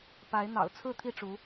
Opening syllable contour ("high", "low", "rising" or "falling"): rising